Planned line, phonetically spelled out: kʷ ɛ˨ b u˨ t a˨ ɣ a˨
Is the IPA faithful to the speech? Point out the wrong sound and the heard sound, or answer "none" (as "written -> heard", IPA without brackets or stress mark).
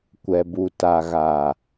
none